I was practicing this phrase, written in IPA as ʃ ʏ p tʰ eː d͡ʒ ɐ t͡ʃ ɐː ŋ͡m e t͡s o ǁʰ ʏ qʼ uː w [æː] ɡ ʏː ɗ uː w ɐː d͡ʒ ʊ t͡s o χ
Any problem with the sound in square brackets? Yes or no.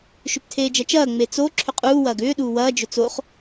yes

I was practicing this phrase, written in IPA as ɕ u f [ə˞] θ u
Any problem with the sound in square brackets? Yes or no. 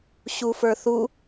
no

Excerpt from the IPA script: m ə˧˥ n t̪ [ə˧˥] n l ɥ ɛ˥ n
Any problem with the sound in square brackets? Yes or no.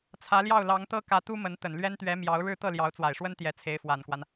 yes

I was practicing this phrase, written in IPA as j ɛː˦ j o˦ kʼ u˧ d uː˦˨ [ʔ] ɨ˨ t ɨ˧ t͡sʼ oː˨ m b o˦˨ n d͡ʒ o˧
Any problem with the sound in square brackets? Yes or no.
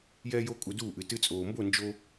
no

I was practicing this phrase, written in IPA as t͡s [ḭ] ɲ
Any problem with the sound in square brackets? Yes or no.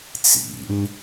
no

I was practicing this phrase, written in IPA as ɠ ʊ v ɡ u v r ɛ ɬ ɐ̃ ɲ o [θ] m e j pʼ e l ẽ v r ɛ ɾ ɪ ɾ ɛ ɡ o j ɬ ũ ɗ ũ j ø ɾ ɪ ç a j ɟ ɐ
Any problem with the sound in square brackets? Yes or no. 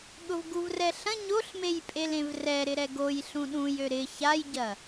yes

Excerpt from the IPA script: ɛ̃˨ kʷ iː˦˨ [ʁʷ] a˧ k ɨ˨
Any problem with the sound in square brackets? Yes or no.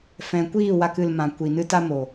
yes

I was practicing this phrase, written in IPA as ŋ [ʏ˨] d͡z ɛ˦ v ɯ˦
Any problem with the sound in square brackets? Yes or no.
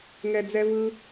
yes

